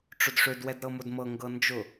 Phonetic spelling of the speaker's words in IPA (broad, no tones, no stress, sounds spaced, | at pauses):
ʈ͡ʂ ʊ d ʂ ø d w ɛ d ɾ ɤ m ʊ d m ɤ ŋ ɡ ɤ n d͡ʒ ʊ